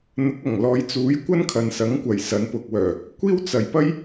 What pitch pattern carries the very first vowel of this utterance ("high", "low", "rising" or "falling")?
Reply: rising